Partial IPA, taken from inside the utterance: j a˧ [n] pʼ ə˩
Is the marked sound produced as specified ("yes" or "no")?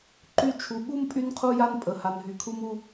yes